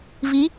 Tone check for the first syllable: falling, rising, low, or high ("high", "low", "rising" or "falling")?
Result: rising